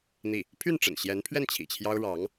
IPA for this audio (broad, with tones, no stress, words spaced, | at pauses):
n̪i˥˩ | pʰy˥˩nʈ͡ʂə̰˨˩nɕjɛ˧˥npʰɥɛ˥˩n t͡ɕʰḭ˨˩t͡ɕʰjɑ˥ʊ̯ ɻɑ˧˥ŋ